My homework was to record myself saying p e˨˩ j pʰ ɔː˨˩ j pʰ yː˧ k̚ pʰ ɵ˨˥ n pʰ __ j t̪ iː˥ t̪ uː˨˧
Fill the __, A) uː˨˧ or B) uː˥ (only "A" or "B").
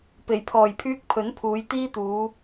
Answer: A